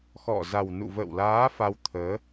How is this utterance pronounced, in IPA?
x ɔ̰˧˨ z a˨˩ w n ṵ˧˨ v ə̰ː˧˨ w l aː˨˦ f a˧ w t̪ʰ əː˨˦

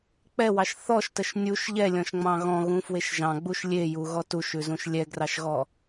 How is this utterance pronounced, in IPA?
k͡p ɛ w ɑ ʃ θ ɔ ʃ t ə ʃ nʲ u ʃ ʎ ɛ lʲ ɔ̃ ʃ ŋ͡m ɑ̃ ɣ ɔ̃ ɣ ũ f w e ʃ ʒ ɑ̃ ɡ͡b u ʃ lʲ e j u ɣ ɔ t u ʃ ʉ z ũ ʃ lʲ ɛ ɡ r ɑ ʃ ɣ ɔ

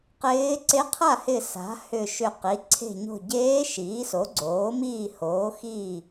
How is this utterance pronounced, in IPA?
q ɪː˧˥ ǀ e˧˥ qʰ a˥˩ h ɪ˧˩ s a̤˩˥ h ʏ˧˩ ʃ ʏ˧˩ q i˩˥ ǀʰ e̤˧˩ ɲ o̤˧˩ ɟ eː˧˥ ʃ iː˩˥ s o˩˥ ɡ͡ǀ oː˩˥ m iː˥˩ h oː˩˥ x iː˥˩

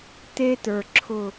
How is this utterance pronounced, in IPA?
t̪ e˦ t̪ ə˞˨ ǁʰ ʊ˦˨

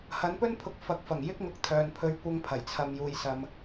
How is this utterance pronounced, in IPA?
h ɐ˨˥ n p ɵ˥ n pʰ ʊ˨˥ k̚ f ɐ˨ k̚ f ɐ˨˩ ŋ j ɪ˥ k̚ ŋ ʊ˨˥ k̚ t̪ʰ œː˨ n pʰ ɵ˥ ɥ kʷ ɐ˧ ŋ pʰ ɐ˨˩ j t͡sʰ ɐ˨ m j uː˨ j s ɐ˨ m

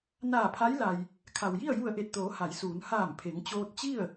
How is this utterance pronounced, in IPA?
n aː˧˩ pʰ a˧˥ j l a˩ j | kʰ a˩ w j i˥˨ ə̯ j u˧˩ ə̯ ʔ e˧˩ t̚ t̪ oː˩˧ h a˩˧ j s uː˩˧ n h aː˧˩ m pʰ e˩˧ ŋ t͡ɕ oː˧ t̚ t͡ɕ i˥˨ ə̯

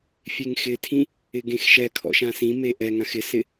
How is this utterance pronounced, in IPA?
fʲ e ŋ x ɪ tʰ ĩ | ɪ ɡ ẽ x ʃ ɛ kʰ ɔ̰ ʃ ã s ĩ m e ʔ ɛ ŋ ã x ɪ s ɪ

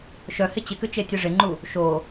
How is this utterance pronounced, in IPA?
ʃ œ h ɪ t͡ɕ ɪ k ʏ t͡ʃ e tʲ œ ʐ ɪ ŋ͡ǃ u | ʃ o

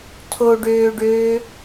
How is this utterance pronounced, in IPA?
tʰ o ɖ øː ɖ øː

